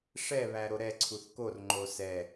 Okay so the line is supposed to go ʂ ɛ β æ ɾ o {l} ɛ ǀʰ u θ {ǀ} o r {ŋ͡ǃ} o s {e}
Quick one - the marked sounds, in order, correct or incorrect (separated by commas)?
incorrect, incorrect, correct, incorrect